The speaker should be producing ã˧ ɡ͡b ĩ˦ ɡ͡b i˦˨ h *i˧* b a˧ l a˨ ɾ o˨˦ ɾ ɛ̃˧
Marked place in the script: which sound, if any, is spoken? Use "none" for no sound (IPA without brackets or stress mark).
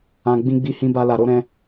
ĩ˧